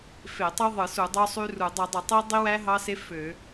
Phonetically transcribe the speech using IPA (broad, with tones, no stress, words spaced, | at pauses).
fe˧˩˧tˤo˦˥ðˤɯ˧˩˧su˧˩˧ dˤo˦˥sˤy˦˥ru˧˩˧ dˤɯ˧˩˧dˤɯ˧˩˧tˤi˦˥ dˤi˦˥wæ˦˥ ɦɑ˦˥se˦˥ fø˧˩˧